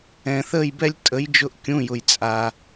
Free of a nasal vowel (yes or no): no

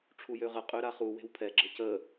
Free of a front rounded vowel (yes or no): no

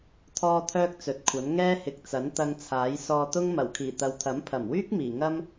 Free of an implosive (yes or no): yes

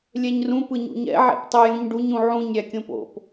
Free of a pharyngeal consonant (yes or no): no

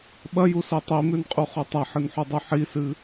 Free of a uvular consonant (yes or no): no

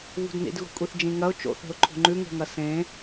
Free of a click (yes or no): no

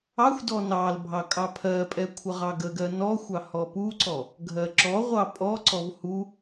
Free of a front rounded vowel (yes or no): yes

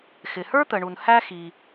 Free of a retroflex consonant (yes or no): no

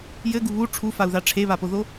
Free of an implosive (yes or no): yes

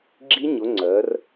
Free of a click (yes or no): no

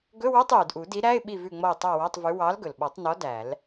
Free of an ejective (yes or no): yes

